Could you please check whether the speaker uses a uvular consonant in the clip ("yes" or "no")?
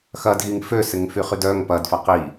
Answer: yes